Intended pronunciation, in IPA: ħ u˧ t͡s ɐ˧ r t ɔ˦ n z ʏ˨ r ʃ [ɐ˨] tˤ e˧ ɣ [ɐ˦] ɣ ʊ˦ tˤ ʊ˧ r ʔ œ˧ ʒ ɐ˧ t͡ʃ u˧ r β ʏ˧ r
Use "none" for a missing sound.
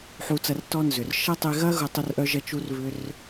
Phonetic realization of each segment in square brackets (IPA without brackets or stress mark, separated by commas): ɐ˦, ɐ˦